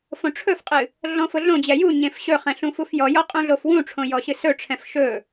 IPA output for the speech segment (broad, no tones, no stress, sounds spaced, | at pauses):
f õ ʈ͡ʂʰ ɵ f qʼ ɨ | ɮ ɔ̃ f ʊ ɮ õ d͡ʑ ɛ j u ɲ ẽ f ɕ ɵ χ ɛ̃ ɬ ũ f u f j ɔ j ɔ qʼ ũ ɮ o f w ũ ʈ͡ʂʰ õ j ɔ ɕ ɨ s ɵ ʈ͡ʂʰ ɛ̃ f ʃ ɵ